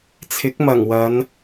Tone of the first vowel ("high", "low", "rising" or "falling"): rising